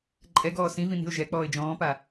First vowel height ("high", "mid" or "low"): mid